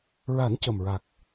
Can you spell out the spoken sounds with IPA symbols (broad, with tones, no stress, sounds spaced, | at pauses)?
ɹ a˨˩˦ n c ə˨˩ m ɹ a˨˩ k̚